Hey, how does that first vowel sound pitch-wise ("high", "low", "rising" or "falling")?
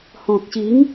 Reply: low